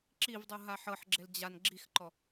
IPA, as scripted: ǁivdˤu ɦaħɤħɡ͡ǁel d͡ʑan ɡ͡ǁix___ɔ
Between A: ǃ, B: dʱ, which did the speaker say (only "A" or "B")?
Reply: A